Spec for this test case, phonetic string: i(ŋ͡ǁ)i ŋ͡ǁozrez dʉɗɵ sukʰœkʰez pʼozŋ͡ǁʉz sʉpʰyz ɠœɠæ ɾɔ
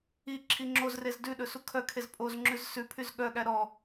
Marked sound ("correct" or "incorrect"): incorrect